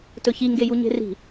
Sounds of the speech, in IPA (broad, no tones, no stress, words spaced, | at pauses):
tɵçiŋɡeju ɲe̤ri̤